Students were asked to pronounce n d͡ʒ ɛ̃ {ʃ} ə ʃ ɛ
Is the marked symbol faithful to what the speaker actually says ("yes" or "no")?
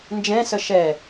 no